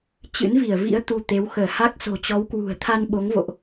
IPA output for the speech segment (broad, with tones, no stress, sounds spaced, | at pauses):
t͡ɕ ɨ̰˧˥ n v i˧˩ ə̯ v ḭ˧˥ ə̯ t̪ u˧ t̪ e˨˦ w x əː˧˩ h a˦˥ k̚ s o̤˨˩ t͡ɕ ɔ˨˦ w k w ṳ˨˩ ə̯ t̪ʰ a˧ n ɓ o˨˦ ŋ v o̰˧˨ ʔ